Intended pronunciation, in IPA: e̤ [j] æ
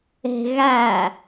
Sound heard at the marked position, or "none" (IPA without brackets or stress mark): ɣ